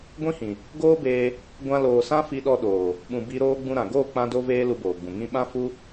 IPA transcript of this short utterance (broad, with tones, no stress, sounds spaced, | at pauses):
ɡʷ ĩ˦ h ĩ˨ | ɡ oː˦ b eː˧ | ɡʷ ã˧ l oː˨ s ã˦ f i˧ ɗ ɔ˧ ɗ oː˨ | ɓ ũ˨ b i˧ ɾ oː˦ ɡ͡b ũ˦ ɾ ã˨ ɡ oː˦˨ k͡p ã˧ d o˧ v eː˧ l u˧ b oː˨ ɡ͡b ũ˨ ŋ ĩ˧ ɓ ã˦ f u˦